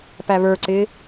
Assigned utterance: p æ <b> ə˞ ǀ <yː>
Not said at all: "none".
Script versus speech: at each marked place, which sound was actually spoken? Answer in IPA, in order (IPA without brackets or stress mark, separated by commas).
β, ɪː